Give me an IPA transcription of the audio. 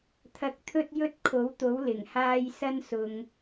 t̪ʰ ɐ˧ k̚ t̪ʰ ɵ˥ t̚ j ɵ˥ t̚ kʰ o˨˥ w t̪ o˨˥ w l ɪ˨˩ ŋ h aː˧ j s ɐ˥ n s ʊ˧ ŋ

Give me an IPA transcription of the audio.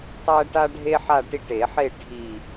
tˤ æ˦ ʈ a˦ ɖʱ e˦ ħ a˥˨ ʈ i˥˨ ʈ e˨˩˦ ħ e˥˨ ʈʰ i˨˩

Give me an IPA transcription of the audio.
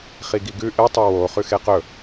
χ i ɡ i ɡ ʉ ʔ ɨ tˤ u w o χ ʉ x e q ɵ

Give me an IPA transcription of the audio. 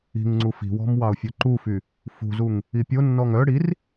i̤ ŋ ŋ͡ǀ u f i̤ w ɔ̤ m w ɑ ʊ̯ fʲ o ǃ u f y | f ṳ z u ŋ | i pʲ o nː ɔ ŋ œ ɽ i r

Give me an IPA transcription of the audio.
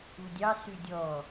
u dʲ ɑ s ʉ dʲ ɔ

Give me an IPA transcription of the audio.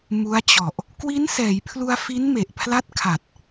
m u˦˥ a̯ t͡ɕ ɔ˨˩ ʔ | k w i˦˥ n s ɛː˩˦ j pʰ l u˧ a̯ f i˦˥ n m e˨˩ ʔ pʰ l a˥˩ t̚ kʰ a˨˩ t̚

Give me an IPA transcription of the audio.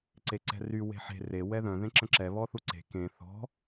ǀ e ǀ ɛ̤ r y w e̤ ħ e̤ r e w ɛ ð œ̃ ð ẽ ǁ ə̃ ǁ ɛ β ɔ θ u ǀ e̤ k ẽ θ ɔ̤

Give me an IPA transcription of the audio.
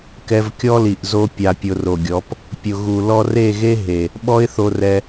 k ɛ˧ v kʲ ɔ˦ l i˨ ʔ z o˦ pʲ a˧ pʲ ʊ˧ r o˨ ɡʲ ɔ˨˦ p | pʲ ʊ˨ ɣ u˨ l ɔ˧ r e˦˨ ɣ e˦ ɦ e˨ | ɓ ɔ˦ ɪ̯ θ o˧ r ɛ˧

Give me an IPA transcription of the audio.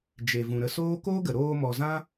d͡ʒ e˨ v ũ˨ ɾ ə˧ s oː˦ k oː˦ ɡ ə˨ ɾ oː˧ m ɔ˨ z ã˦

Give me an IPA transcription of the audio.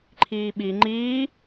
ǃʰ iː ɓ i ŋ͡ǃ iː

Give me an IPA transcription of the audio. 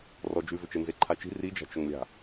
r ɔ d͡ʒ ʉ v ʏ t͡ʃ e n z e ǃʰ a t͡ʃ i̤ r i d͡ʒ a̤ t͡ʃ ʊ ŋ lʲ a̤

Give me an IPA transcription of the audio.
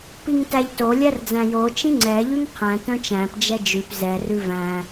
p i ŋ t æ ʎ t o lʲ æ r d͡z æ̃ j o t͡ʃ ĩ ŋ͡ǀ ɛ ʎ ʉ ŋ qʰ æ̃ t œ̃ t͡ʃ æ̃ p d͡ʒ ɛ d͡ʒ ʉ p z ɛ r ʉ v æ̃

